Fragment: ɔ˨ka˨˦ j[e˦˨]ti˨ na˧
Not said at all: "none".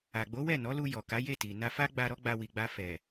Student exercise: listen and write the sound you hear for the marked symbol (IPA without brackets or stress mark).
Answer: e˦˨